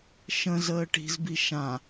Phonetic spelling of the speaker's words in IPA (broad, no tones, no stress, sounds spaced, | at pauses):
ʃ ə̃ z əː ʈ i̤ z b i ʃ ã